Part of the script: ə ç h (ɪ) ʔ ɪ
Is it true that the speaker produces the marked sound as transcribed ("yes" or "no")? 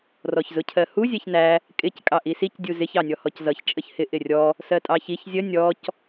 yes